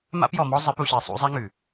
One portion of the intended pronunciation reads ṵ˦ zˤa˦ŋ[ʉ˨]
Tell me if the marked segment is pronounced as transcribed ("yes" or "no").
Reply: yes